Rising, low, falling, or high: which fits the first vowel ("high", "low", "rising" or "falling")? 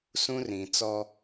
high